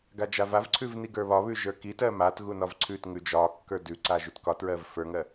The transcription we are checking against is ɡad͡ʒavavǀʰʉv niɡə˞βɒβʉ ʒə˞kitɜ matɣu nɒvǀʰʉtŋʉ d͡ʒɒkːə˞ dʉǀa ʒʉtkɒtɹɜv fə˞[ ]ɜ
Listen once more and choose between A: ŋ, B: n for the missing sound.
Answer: A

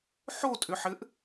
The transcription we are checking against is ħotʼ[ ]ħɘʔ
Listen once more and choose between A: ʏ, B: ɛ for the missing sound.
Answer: A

